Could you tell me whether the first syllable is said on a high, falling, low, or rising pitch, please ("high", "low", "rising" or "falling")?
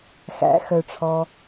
rising